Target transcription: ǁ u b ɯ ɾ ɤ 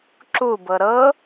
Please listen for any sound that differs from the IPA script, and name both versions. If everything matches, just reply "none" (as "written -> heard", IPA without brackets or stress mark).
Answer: ɯ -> ɤ